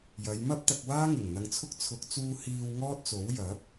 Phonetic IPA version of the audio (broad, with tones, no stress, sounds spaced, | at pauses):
j ɐ˨˧ j m ɐ˥ p̚ t̪ ɐ˧ k̚ w aː˥ ŋ ɪ˨˩ ŋ n̪ ɐ˨ ŋ t͡sʰ ʊ˧ k̚ t͡sʰ ʊ˨˥ k̚ t͡s uː˧ h iː˧ w ŋ ɔː˥ t̚ t͡s o˨˥ w j ɐ˨˥ p̚